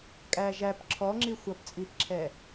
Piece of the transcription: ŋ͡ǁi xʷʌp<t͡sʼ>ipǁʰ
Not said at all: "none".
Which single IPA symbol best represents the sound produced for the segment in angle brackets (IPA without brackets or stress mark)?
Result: t͡sʼ